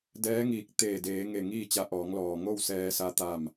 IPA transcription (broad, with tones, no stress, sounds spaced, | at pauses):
d ɛː˧˥ ŋ iː˧˩ k̚ t̪ eː˧˩ d eː˩˧ ŋ e˧˩ ŋ iː˥˨ t͡ɕ a˧˥ ʔ ɔː˩˧ ŋ l ɔː˩ ŋ o˥˨ w s ɛː˧ s a˧˥ t̪ a˥˨ m